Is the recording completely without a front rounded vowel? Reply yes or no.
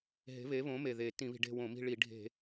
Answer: yes